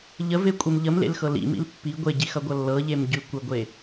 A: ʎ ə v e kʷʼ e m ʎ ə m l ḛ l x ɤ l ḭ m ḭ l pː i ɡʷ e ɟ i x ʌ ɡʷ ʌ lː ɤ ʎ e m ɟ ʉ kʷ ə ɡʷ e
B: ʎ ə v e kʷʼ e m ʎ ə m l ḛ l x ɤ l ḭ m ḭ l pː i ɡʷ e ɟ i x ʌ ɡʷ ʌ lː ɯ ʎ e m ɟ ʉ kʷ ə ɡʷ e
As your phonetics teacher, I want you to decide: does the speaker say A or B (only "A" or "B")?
A